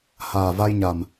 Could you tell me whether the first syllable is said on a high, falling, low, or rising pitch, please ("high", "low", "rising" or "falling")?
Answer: low